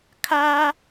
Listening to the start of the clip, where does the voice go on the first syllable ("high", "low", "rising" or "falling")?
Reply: high